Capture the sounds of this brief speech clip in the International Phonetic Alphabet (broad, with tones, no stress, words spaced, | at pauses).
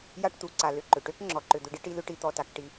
ja˥ʈt̪u˩ǀa˩ lʏ˩ǃʏ˩ʈø˥k ŋ͡ǁɔ˩ǃʏ˩d̪ʏ˧ɖi˥ ʈi˧lʏ˧ʈi˧ t̪ɔ˩ta˩kʈi˩